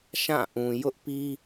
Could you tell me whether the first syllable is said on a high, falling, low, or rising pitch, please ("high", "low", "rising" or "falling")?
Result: falling